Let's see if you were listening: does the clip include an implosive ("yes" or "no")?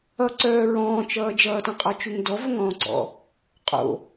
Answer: no